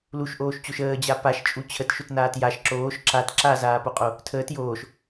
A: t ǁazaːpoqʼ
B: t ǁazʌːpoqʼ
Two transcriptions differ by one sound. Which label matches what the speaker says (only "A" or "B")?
A